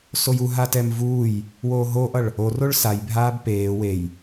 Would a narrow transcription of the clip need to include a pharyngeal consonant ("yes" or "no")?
no